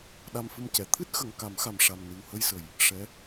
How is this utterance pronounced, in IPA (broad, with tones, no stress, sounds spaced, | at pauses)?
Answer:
ɗ a˧ m f ɨ˧ m c ɛ˨˩˨ t̪ʰ ɨ˦˥ t̚ x ə˨˩ ŋ k a˨˩˦ m x a˨˩ m ʂ a˨˩ m n ɨ˨˩ w h ə˧ j s ə˨˩ j | ʂ ɛ˧˥